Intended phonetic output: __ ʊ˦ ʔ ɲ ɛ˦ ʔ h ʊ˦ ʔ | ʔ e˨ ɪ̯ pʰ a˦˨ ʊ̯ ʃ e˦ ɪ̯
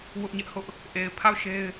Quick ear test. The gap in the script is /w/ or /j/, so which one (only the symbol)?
w